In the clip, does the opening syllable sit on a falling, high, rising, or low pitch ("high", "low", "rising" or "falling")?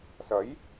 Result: rising